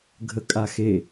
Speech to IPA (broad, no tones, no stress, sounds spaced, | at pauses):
ɡʱ ə kʼ a x e